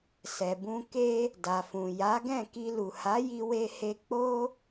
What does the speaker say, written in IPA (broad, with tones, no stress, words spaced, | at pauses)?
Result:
sɛ˨bũ˧ ke˦ | da˨fũ˨ ja˨˦ɡɛ̃˦˨ ki˧lu˨ha˨˦ji˧ we˧he˧k͡po˦